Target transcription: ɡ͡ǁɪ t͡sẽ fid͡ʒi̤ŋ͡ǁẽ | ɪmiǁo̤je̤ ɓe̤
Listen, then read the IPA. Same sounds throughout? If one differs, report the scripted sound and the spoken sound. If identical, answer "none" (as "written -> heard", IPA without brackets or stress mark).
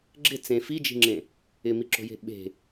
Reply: none